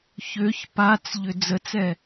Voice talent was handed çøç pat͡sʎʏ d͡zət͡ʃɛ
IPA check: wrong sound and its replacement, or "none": t͡ʃ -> t͡s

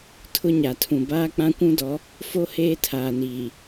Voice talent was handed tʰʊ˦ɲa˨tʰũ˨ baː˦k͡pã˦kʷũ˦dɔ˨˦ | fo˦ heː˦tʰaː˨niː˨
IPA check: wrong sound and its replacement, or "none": none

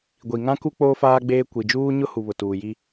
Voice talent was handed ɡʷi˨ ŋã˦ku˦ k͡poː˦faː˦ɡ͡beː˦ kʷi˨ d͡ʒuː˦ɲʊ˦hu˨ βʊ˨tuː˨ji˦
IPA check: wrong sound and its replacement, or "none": none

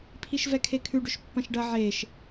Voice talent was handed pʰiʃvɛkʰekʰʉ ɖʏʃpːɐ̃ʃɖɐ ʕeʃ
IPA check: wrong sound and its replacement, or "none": none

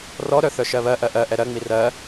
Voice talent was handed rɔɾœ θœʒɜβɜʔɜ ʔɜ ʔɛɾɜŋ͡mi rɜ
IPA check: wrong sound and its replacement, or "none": ʒ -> ʃ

